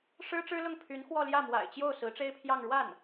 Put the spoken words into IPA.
ʂ ɻ̩˥ ʈ͡ʂ ɻ̩˥ l ʊ˥˩ ŋ pʰ y˧˥ n x w ɔ˥˧ l j ä˥˩ m w a̰˨˩ ɪ̯ t͡ɕ j o˥˩ ʊ̯ s ɹ̩˧˥ ʈ͡ʂ e˥ ɪ̯ pʰ j ɑ˥˧ ŋ ɻ w a˥˩ n

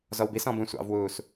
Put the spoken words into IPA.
z ɔ w b i s ɔ̃ b ũ sʷ ɑ̰ v w uː s

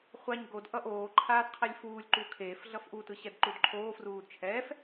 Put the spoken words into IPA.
χʷ a ɲ ɡ o d ʔ ʌ ʔ oː ǃʰ aː d qʰ ɛ lʲ f uː lʲ ǃ u kʰ eː f ɮ ʌ f ʔ u t ɯ ɕ ɛ d ǃ u d ǃʰ oː f r uː d t͡ʃʰ ɛː f

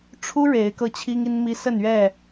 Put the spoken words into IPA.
ʈ͡ʂʰ u˦ ɻ e˨˦ ɪ̯ k ɤ˧ t͡ɕʰ i˦ ŋ i˦ n m i˦ s ə˥˨ n ɥ ɛ˥˨

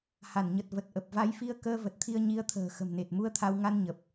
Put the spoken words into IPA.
h a˧˩ n ɲ ə˨˩ t̚ v ə˨˩ t̚ ʔ ə˨˩ p̚ v a˨˦ j f i˧ ə̯ k əː˧ v ə˨˩ t̚ t̪ʰ i˧ ə̯ ɲ i˨˦ ə̯ t̪ʰ ə̤ː˨˩ x ə̤˨˩ m n e˨˩ t̚ m u˧ ə̯ t̪ʰ a˧ w ŋ a˧ n ɲ ə˨˩ p̚

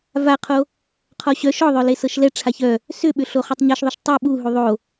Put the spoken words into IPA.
v a qʰ o | qʰ ɔ ɕ œ ʃ ɔ ðˤ œ l e s ɤ ʃ l ɛ ʈ͡ʂʰ a ç œ | s ʏ ɓ ʏ ɬ o χ ɤ tˤ ɲ ɤ ʃ ðˤ o ʃ tˤ u ɓ u ɦ u ðˤ o

